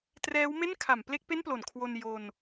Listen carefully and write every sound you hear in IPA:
trɛː˦˥wme˥˩nkʰa˩˦mple˥˩k̚ pe˥˩nplo˩˦nkʰwo˧n jo˧n

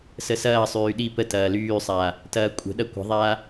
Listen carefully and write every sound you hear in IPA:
səsɐːsˤyː ɗi pətɐː lyːsˤaː | tɐːkʷʼə̤ɗɐ kʷə̤ðˤaː

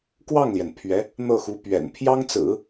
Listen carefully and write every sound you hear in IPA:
kwɑ˥˩ŋljɛ˩n pʰɥɛ˧˥ | n̪ɤ˥˩xu˧˥ pɥɛ̰˨˩n pʰjɑ˥ŋt͡sɹ̩˨˩˦

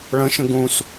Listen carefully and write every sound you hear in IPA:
ɭə̃ʃə̃ ɡũs

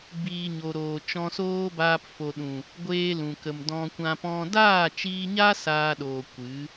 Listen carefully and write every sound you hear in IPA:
biː˨ ɲo˨ɾoː˨ t͡ʃɔ̃˧soː˦baː˧p fo˨ɗũ˨ | ɡʷeː˧lũ˨kə˨m dɔ̃˧kʷã˧pɔ̃˦ daː˦˨t͡ʃiː˧ɲa˦ saː˧ ɗoː˧ kʷɨ˨˦

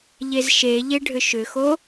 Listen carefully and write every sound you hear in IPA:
ʎezʃeʎe ɖʱʏʃʏxo

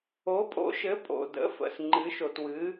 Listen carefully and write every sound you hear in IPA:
o˨˥pʼo̰˨˥ʃɘ˨˥ pʼo̰˨də̰˨˥fə̰˨s ŋ͡ǃɨ˨˥ʃo˨twɨ˨˥

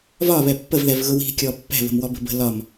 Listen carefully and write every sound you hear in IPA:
vɒβɛ pːəvðɛvɣʊ wi̤kʲɔ pːɛ̤βə̤mwɔbə̤ bə̤ lɒm

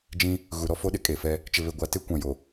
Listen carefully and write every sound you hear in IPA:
d͡ʒĩ˦ | ɣu˨ɾɔ˦fo˦ɗɪ˦ kʼe˨fɛ˦ | t͡ʃɪ˨βe˨ɡʷa˨te˦ kʷã˨jo˨

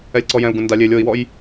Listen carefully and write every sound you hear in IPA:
ɛlʲǀɔjɛ̃u̯ɡũ nda lʲelʲ oi̯wɔj

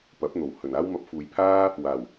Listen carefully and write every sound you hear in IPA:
pɐ˨˥p̚n̪o˨˩w hɵ˨˩naː˥w mɐ˨˥p̚fuː˨jpʰaː˥ | waː˨˩w

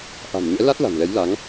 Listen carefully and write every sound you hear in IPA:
ʔa̤˨˩mɲɛ̰˧˥la˦˥t̚ la̤˨˩nlɛ˨˦jla˨˦ŋ

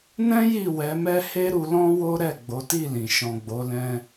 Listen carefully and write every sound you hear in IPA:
nɛ̃˦ ji˦˨wɛ˨˦mɛ˦ he˦ɾu˧lɔ̃˦ wo˦ɾɛ˦˨ ɡ͡bo˨˦ti˦˨lĩ˨ ʃɔ̃˨ɡ͡bo˨˦lɛ̃˧

